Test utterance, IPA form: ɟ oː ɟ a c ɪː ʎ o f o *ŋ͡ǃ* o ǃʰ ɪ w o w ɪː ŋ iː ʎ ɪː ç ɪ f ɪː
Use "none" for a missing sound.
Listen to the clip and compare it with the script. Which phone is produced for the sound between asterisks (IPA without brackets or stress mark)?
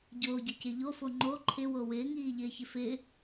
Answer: ŋ͡ǃ